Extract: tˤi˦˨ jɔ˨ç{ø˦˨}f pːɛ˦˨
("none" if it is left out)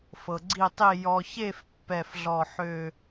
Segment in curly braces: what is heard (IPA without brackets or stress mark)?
e˦˨